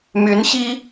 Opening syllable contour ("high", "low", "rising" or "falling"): rising